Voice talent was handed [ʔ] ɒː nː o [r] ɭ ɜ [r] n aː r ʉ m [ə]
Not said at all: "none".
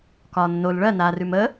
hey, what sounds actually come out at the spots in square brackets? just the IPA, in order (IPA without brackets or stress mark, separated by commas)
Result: k, l, none, ə